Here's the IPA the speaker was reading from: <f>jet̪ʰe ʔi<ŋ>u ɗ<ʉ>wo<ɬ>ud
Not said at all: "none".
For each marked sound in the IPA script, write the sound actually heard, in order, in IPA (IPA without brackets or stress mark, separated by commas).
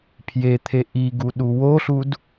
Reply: pʰ, ɡ, u, ɬ